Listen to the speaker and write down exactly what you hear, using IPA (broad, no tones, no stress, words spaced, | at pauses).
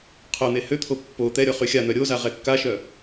qʰœn̪e høt̪ʰo pːo t̪ɛɾʲɔ χyxʲan̪œ ɾʲoza ʁɛkːaʃœ